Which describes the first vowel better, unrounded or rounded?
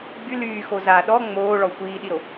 rounded